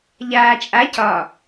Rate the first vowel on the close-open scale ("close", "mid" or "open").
open